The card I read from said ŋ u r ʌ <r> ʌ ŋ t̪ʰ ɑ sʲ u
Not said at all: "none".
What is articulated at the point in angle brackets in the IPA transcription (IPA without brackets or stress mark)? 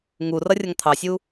rʲ